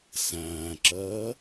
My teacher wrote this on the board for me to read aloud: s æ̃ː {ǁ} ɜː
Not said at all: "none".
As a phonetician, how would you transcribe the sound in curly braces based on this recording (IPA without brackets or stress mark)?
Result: ǁ